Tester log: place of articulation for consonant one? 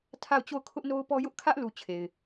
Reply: alveolar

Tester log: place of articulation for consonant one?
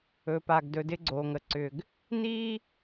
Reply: labial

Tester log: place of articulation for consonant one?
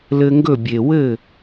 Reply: alveolar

